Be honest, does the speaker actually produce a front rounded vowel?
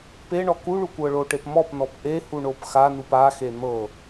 no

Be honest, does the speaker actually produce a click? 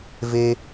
no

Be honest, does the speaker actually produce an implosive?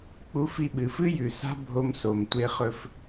yes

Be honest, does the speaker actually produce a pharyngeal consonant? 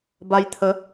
no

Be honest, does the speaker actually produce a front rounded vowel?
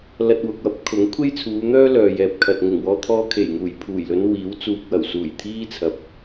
yes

